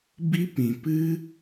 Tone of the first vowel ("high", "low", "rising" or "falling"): high